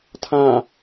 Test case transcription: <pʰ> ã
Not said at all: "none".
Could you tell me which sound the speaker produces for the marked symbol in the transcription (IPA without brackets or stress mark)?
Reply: tʰ